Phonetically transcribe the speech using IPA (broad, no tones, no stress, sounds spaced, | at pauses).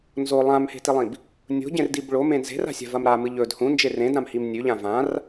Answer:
n z o lˠ ã m h e̤ t i lˠ ĩ b | nʲ o̤ ɟ ẽ r d i b ɭ o m ẽ n z e̤ r a̤ sʲ a̤ v ɐ m ɾ a m ɨ ʎ ɵ d h ũ n d͡ʒ e r ẽ d ɾ ã m h i m nʲ ʉ ʎ ã v ã r